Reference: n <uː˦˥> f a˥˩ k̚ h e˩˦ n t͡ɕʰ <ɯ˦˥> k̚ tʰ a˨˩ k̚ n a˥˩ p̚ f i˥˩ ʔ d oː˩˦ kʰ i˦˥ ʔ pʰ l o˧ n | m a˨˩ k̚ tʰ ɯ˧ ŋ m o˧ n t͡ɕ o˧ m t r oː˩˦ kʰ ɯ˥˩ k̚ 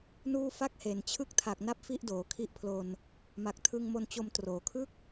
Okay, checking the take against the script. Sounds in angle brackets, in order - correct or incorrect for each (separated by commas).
incorrect, correct